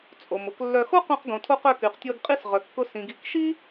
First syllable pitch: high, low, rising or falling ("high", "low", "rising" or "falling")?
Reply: low